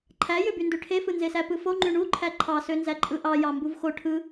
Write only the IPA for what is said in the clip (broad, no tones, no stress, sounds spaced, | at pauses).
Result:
ǃʰ æ j ø b y n d ø ʈʰ e f ɯ n z e s æ p ɯ f o ŋ͡ǃ y ɳ u ǃʰ æ ǃʰ ɑ s ø n z æ ǃʼ ɯ ʔ ɑ j ɑ m b u v x o ʈʰ ɯ